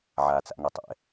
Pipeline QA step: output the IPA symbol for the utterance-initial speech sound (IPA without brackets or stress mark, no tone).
ʕ